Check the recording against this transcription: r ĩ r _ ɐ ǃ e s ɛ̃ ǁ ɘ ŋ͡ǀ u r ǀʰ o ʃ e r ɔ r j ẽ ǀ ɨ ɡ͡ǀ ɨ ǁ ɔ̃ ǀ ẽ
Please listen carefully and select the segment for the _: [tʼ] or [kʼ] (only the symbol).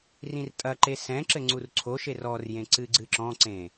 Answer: tʼ